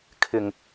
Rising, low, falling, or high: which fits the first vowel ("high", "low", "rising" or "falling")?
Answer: low